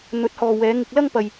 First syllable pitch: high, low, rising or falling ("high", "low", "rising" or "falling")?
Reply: rising